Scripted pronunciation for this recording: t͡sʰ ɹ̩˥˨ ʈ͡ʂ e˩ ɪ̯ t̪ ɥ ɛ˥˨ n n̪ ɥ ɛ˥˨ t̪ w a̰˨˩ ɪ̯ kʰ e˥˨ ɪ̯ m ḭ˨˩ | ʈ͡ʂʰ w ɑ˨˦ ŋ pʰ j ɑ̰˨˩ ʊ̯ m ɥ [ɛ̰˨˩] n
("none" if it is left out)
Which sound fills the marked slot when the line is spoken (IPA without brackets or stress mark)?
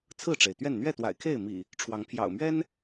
ɛ˦